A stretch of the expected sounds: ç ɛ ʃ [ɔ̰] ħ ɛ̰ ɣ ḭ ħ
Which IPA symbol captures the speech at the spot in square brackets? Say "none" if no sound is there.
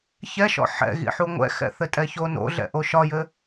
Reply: ɔ̰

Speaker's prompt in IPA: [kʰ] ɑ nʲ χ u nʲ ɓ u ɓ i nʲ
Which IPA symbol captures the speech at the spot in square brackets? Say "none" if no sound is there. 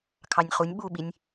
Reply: kʰ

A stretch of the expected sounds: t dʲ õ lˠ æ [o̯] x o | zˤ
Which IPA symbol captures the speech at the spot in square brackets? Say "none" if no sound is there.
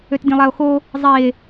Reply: o̯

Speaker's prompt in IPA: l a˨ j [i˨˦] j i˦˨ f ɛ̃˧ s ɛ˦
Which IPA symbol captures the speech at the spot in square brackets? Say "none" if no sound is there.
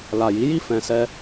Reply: i˨˦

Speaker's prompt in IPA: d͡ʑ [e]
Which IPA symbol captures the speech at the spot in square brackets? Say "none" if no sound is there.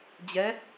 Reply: ɛ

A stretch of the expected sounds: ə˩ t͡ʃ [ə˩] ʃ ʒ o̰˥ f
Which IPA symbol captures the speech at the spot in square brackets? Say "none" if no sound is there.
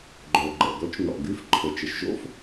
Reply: ə˩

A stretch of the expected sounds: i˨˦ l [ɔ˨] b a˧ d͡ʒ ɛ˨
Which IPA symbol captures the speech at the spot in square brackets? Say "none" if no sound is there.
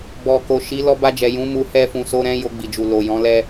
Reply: ɔ˧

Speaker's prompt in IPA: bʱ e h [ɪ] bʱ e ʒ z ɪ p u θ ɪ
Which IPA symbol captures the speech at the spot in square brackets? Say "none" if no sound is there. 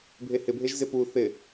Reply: ɪ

